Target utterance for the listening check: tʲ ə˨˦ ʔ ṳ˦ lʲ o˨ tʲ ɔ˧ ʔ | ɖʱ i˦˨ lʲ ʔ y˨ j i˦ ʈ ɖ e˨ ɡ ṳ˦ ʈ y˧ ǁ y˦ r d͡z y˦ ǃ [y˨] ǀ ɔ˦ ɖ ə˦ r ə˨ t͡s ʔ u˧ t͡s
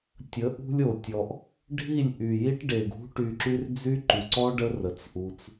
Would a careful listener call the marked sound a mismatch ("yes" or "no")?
no